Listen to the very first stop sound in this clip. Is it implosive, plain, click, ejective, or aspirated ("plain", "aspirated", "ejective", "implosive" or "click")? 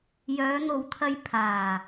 aspirated